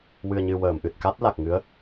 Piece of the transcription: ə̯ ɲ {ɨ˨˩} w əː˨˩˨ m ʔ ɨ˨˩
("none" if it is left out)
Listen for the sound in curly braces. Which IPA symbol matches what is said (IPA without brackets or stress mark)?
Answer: ɨ˨˩